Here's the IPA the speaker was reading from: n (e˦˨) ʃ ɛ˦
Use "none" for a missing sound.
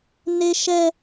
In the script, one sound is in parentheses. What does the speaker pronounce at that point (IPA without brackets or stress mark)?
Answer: e˦